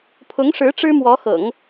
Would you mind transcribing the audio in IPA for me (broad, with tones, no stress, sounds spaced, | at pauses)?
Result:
pʰ ʊ˧˥ ŋ ʂ ɻ̩˧˥ ʈ͡ʂ ɻ̩˥ m w ɔ˧˥ x ɤ̰˨˩˦ ŋ